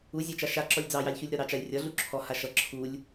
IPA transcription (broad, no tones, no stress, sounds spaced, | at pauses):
u zʲ a t͡ʃ a ʃ a ǁ ɔ lʲ d͡z ɑ j ɑ lʲ ç u lʲ ɾ ɒ ɾ ɑ t͡ʃ a lʲ rʲ ɒ ɮ u ǁʰ ɔ h a ʃ ʌ ǁʰ u lʲ